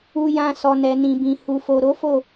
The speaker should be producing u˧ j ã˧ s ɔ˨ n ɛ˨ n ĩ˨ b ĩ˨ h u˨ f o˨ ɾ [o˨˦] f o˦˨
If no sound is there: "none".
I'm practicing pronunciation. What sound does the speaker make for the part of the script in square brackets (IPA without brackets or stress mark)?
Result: o˨˦